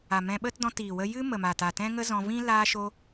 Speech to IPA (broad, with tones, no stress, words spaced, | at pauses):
a˨ mɛ̃˧ɓə˦t dɔ̃˧tiː˨wə˧ jɨ˦mə˨ma˨ ta˨tɛ̃˦ŋə˦zɔ̃˧ vĩ˦ laː˦ʃo˦